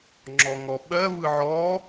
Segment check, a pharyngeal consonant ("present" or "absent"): present